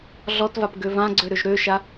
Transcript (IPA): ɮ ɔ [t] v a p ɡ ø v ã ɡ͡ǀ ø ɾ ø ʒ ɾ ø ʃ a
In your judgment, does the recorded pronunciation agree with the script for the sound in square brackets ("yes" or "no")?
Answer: yes